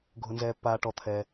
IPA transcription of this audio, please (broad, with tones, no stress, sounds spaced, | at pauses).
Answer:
ɡʱ ʊ˩ n z ɛː˩ pː aː˩ ʈ ɔ˩ t̪ʰ ɛ˩